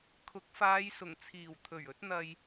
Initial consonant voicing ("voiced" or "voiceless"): voiceless